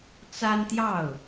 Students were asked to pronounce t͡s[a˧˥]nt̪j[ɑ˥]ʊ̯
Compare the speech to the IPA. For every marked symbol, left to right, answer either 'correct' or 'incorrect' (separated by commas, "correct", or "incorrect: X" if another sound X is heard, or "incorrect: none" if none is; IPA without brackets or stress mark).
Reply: incorrect: a˥, incorrect: ɑ˥˩